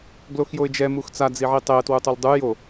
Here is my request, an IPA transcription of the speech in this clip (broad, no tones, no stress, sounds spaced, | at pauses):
ɡ l o x j o ɪ̯ d͡ʒ ɛ m u x t͡s a d͡z i ʕ i tˤ e ə̯ t w u tˤ u l dˤ u j o